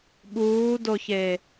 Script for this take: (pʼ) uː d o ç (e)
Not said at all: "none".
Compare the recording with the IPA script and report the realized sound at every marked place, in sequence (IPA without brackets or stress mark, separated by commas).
ɓ, e